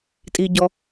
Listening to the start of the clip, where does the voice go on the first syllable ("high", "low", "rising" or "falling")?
low